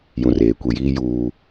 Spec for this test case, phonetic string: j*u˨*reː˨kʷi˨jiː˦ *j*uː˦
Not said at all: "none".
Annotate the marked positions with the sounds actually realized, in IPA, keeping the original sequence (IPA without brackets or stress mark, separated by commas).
ũ˨, j